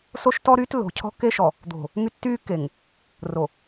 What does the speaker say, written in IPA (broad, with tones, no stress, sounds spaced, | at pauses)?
s o˦ ʃ t ɔ˦ ɾ yː˦ t lː o̤˨ cʰ ɔ̤˦ kː e˦ ʃ ɔ˨ | d̪ o̤˨ | ŋ y˦ tː yː˦ kː e˨ ŋ | r o˨